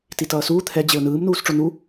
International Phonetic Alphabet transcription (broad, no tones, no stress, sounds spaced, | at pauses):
t i t ʌː s uː t̪ʰ ɛ d͡ʑ e ʊ̯ n ɯː m n uː s ʈ͡ʂ o n u